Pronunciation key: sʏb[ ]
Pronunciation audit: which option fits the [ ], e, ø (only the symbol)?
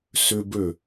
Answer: ø